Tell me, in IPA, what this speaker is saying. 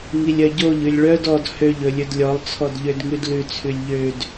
ŋ i lʲ œ ɟ o ʎ ʉ lʲ ɭ œ d ɔ d h ø ʎ ɵ lʲ ɵ d lʲ ɔ lˠ t͡sʰ ɔ d ʎ ø d ŋ ʉ d l ʉ t͡sʰ ʉ lʲ ʎ ø d

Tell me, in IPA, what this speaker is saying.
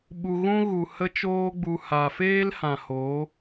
ɓ u˧ ɣ ũ˦ ɣ u˨ h ə˧ t͡ʃ oː˧ ɡ͡b u˨ h a˨ f eː˦ l h ã˨ h o˨˦

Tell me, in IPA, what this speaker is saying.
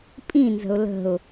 pʼ ĩ n z ə̤ ʊ̯ l ə̤ ʊ̯

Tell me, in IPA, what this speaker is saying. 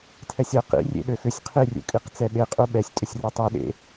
tʰ ɛ sʲ ɤ q ḭ rʲ ḛ ɗ ø x ʏ sʲ qʰ i rʲ ṵ kʼ i q t͡s ɛ ɓ e qʼ u ɓ ɛ sʲ tʼ ʏ sʲ r ɤ tˤ u ɗ ḛ

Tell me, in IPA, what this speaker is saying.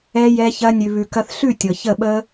ɛ˧ j ɛ˧ ç ɐ˧ nʲ ʉ˨ β ʉ˨ k ɐ˧ θ ɬ ʉ˦˨ tʲ ɤ˨ ç ə˦˨ ɓ ə˦

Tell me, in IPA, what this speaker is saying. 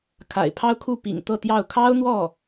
kʰ a̰˨˩ ɪ̯ pʰ ɑ˥ ʊ̯ kʰ u˥˩ p ḭ˨˩ ŋ t̪ ɤ˥˧ t̪ j ɑ˥˩ ʊ̯ kʰ ɑ˥ ʊ̯ n̪ w ɔ˥˩

